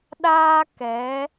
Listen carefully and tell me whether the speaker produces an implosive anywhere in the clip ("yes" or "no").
yes